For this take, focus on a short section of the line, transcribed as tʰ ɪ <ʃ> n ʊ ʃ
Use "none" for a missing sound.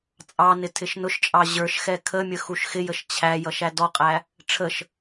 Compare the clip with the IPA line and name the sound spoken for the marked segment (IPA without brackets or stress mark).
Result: ʃ